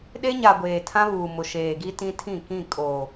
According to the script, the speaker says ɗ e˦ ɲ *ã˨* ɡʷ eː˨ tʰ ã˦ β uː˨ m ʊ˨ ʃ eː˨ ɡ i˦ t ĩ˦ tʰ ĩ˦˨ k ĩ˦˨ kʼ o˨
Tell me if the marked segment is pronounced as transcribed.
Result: no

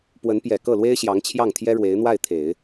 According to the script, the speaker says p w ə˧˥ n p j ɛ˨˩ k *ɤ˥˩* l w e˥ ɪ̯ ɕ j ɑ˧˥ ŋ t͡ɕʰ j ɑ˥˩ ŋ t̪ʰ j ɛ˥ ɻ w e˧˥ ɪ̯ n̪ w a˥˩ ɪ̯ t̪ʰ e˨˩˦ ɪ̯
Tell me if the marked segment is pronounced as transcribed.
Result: yes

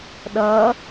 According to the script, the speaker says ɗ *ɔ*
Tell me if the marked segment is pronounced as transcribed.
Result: no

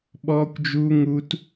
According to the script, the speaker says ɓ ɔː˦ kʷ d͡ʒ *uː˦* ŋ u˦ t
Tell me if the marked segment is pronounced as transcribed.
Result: yes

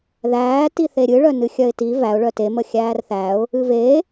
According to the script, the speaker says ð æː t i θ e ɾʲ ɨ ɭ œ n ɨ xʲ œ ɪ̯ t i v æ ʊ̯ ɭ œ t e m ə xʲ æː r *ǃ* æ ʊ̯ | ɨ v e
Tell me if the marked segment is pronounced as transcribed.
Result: no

